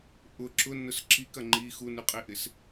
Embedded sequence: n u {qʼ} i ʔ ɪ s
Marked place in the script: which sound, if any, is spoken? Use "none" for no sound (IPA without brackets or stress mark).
qʼ